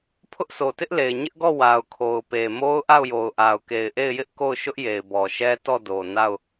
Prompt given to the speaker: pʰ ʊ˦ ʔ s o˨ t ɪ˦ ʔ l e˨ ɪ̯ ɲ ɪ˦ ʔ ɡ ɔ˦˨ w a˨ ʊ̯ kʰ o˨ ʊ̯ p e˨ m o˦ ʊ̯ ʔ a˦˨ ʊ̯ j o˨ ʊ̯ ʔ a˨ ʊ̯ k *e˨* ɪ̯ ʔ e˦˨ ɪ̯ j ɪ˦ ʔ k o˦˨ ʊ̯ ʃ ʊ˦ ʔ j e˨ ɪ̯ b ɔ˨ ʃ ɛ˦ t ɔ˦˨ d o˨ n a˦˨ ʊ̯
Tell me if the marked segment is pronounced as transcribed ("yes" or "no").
yes